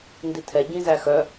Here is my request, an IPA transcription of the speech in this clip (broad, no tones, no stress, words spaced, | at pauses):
nditʰɛ ɟĩzæxœ